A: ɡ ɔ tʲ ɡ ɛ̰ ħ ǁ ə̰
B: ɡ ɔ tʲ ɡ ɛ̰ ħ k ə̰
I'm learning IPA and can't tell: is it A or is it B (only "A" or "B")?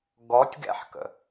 B